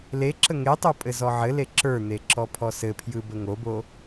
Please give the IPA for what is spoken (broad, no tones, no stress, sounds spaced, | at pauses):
l e ǁ ə ŋ e tˤ o pʼ ɘ z ɔ ʕ ɘ l e ǁ ə˞ n̪ e ǁ ɔ pʰ ɔ s ɘ pʰ j ɯ b ə ŋ o b o